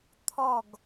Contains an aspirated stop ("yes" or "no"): yes